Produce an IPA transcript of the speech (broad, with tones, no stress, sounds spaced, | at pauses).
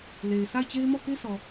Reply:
l e˨ ɪ̯ s a˦˨ ɪ̯ t͡ɕ e˦ ɪ̯ m ɔ˦˨ k e˦ s ɔ˨